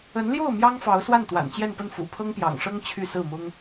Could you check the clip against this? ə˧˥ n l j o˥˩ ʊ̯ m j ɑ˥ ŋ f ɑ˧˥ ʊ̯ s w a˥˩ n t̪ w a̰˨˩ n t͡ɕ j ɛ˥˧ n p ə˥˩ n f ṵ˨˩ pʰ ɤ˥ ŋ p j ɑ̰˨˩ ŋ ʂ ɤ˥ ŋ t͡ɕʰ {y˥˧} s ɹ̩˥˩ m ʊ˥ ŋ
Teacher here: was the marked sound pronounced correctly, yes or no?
yes